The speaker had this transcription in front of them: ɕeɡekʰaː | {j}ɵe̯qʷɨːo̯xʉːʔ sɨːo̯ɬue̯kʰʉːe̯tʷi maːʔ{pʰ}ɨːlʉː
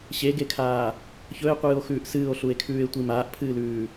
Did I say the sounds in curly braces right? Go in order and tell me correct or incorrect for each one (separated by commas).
incorrect, correct